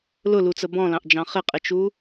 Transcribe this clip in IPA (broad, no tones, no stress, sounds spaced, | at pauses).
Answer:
l ʊ l u t͡s ə b ɔ̃ l ɑ̃ ʔ d͡ʒ ɑ̃ χ ɪ qʼ ɪ t͡ʃ u